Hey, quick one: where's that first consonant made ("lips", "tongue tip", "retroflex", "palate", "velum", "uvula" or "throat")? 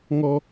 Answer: velum